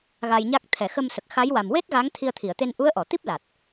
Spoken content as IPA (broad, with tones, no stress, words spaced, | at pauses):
ɣa˧jɲa˦˥k̚ t̪ʰɛ˨˩˨xə˧m sə˨˩k̚xa˧˥jwa˨˩m we˦˥t̚ ɣa˧˥ŋt̪ʰi˧ə̯t̪ʰi˨˩˨ə̯t̪e˧n ʔu˧˥ə̯ʔɔ˨˩˨t̪i˦˥p̚ la˨˩t̚